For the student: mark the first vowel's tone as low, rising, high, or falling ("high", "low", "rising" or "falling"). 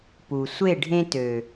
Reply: low